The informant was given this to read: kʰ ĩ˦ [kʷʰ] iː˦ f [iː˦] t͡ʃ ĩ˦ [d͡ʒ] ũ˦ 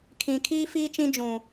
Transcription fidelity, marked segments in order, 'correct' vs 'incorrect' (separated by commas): incorrect, correct, correct